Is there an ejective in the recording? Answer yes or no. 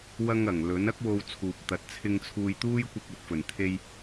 no